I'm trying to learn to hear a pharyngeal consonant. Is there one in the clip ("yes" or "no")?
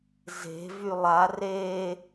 no